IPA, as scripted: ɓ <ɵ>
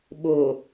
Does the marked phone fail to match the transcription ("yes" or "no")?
yes